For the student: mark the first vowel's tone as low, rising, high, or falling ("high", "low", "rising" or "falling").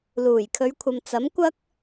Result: low